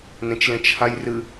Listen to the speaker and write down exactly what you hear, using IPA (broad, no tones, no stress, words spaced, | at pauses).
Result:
nẽt͡ʃlẽt͡ʃhajrɨ